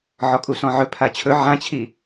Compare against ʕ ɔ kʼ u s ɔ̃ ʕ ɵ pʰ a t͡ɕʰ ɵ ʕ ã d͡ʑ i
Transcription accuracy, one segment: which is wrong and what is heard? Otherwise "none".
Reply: d͡ʑ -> t͡ɕʰ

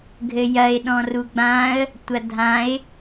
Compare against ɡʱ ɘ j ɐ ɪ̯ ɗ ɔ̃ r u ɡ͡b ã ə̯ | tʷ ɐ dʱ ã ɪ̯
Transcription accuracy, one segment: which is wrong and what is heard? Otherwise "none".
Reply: none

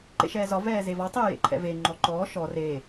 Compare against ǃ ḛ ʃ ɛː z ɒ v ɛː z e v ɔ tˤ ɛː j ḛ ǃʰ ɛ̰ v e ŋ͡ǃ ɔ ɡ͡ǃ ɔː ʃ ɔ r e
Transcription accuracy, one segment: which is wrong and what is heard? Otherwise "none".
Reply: ɡ͡ǃ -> ǃ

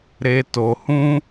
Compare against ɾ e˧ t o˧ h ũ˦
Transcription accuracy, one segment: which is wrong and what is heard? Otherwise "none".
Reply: none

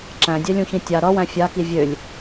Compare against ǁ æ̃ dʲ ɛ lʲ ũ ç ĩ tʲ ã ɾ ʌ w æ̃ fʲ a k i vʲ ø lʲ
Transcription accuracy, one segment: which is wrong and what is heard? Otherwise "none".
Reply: ã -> a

